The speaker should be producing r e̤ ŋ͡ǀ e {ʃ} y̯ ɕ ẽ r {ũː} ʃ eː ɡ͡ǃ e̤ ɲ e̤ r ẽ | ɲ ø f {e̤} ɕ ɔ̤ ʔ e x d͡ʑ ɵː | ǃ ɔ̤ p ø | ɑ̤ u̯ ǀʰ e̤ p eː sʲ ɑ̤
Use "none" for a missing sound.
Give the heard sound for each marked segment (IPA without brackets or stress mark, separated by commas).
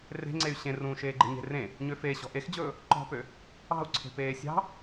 none, ũː, e